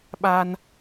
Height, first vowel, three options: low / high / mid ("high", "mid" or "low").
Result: low